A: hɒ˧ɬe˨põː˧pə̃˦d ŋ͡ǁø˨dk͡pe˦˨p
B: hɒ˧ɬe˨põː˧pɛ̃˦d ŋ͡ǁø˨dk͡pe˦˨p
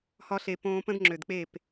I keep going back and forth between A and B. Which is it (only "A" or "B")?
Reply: A